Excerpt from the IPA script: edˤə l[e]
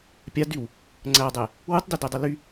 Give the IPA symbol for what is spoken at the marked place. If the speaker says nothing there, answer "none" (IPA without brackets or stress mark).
y